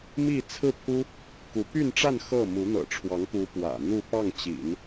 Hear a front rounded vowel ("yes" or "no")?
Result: yes